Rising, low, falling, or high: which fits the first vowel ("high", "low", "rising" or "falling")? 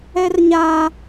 high